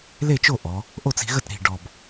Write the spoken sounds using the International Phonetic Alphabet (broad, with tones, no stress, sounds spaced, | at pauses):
l e˥˨ t͡ʃ o˥˨ ʔ ɔ˩˧ | ʔ o˥˨ t͡s i̤˩˧ ɣ ə˥˨ t ɾ i̤˨˩ ɖ ɔ˨˩ b